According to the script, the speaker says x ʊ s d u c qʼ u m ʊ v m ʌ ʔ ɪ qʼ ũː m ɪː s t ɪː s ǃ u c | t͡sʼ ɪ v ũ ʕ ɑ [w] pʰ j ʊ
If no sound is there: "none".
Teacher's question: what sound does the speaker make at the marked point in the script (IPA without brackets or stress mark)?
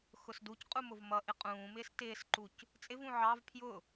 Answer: v